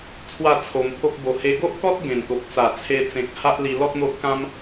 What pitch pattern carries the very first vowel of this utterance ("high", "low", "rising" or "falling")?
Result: falling